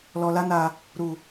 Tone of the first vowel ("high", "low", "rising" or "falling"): low